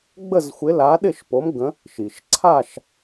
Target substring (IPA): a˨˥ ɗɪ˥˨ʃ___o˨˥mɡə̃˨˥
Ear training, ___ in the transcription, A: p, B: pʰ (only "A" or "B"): A